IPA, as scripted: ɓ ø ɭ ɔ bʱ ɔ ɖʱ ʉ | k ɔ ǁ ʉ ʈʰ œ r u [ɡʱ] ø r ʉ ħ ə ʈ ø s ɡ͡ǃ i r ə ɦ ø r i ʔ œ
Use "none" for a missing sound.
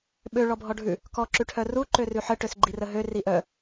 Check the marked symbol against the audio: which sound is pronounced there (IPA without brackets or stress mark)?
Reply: ǃ